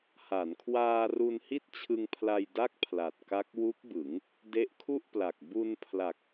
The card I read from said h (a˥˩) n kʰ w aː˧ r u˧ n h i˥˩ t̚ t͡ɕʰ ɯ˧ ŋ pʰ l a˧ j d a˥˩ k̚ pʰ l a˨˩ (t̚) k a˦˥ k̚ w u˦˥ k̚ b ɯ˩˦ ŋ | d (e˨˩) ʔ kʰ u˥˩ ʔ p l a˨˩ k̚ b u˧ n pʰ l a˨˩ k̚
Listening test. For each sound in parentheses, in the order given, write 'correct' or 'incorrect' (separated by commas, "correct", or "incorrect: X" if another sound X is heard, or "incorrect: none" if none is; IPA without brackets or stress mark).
incorrect: a˩˦, correct, incorrect: e˦˥